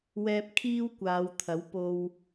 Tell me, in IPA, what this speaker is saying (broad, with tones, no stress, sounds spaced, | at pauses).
w ɛː˧ p̚ kʰ iː˥ w kʷ aː˨˧ w t̪ʰ ɐ˨˥ w p o˧ w